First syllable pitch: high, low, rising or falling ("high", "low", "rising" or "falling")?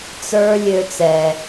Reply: high